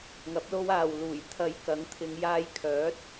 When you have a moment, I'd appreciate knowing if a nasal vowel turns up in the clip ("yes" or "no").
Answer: no